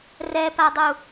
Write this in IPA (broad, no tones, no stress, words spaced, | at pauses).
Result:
rɛpadˤu